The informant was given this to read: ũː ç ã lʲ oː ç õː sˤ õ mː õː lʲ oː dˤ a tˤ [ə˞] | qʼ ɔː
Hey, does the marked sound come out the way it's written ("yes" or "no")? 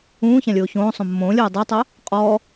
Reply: no